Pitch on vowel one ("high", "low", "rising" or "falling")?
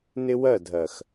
high